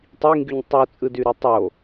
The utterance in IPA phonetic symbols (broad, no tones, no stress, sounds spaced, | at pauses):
tˤ i ŋ ɡ y ɲ tˤ u t͡sʼ ɯ d y ɾ y tˤ o